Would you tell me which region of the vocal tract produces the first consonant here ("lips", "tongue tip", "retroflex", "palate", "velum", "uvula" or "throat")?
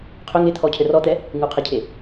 uvula